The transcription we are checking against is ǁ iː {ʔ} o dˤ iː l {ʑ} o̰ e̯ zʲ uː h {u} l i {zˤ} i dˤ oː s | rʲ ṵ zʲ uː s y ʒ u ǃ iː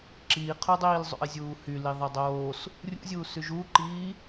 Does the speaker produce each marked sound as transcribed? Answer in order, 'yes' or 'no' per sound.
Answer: no, no, no, no

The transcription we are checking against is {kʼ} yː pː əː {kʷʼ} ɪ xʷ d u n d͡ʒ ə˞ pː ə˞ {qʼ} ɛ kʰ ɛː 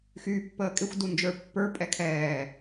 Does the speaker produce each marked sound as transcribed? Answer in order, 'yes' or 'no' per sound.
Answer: no, no, no

